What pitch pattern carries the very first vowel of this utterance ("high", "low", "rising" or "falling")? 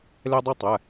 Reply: high